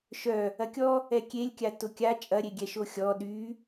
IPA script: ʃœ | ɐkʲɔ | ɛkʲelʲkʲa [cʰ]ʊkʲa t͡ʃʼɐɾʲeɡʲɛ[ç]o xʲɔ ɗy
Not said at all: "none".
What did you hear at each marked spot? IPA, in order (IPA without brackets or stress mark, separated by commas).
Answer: t, ʃ